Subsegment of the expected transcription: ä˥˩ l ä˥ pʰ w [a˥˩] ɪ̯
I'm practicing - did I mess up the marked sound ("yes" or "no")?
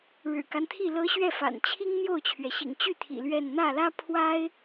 yes